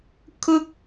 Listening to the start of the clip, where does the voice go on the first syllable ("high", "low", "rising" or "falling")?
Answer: high